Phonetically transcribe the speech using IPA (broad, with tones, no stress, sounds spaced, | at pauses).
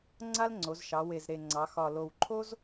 ŋ͡ǀ a˥ l ŋ͡ǀ o˩˧ z ʃ ɑ˩˧ w e˨˩ z ɾ e˨˩ ŋ͡ǀ ɑ˩˧ x ɒ˨˩ l o˨˩ w ǃʰ o˥ z